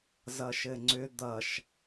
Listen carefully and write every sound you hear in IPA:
zʌʃɘŋ͡ǀʏ d̪ʌʃ

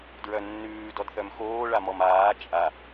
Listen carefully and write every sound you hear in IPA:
dɹœnːʉːdɔd θœmxoːɭamɔm aː t͡ʃʼa

